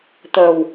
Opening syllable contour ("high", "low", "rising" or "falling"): low